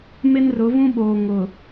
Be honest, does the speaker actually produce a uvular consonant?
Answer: no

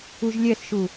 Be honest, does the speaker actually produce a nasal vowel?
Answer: no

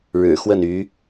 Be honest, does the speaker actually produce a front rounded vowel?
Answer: yes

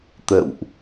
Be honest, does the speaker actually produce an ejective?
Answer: no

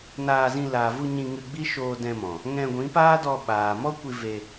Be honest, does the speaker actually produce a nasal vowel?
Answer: yes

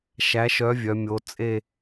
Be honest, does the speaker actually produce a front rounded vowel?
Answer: yes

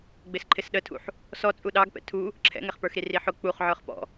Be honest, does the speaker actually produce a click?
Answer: yes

